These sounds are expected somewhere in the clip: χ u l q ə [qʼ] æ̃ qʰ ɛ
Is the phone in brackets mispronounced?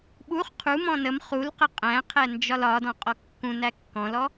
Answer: no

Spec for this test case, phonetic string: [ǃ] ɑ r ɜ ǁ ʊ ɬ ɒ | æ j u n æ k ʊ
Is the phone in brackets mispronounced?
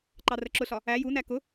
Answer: no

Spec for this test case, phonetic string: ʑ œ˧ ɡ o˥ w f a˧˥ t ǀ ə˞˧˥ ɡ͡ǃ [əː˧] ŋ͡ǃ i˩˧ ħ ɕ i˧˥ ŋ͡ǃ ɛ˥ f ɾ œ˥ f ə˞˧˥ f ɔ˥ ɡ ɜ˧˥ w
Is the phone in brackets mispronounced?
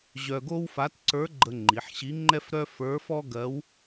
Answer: yes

